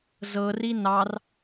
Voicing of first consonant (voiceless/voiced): voiced